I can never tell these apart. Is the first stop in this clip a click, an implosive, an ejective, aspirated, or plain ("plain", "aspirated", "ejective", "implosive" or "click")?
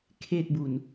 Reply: aspirated